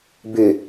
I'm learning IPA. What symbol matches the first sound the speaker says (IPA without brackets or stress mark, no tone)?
b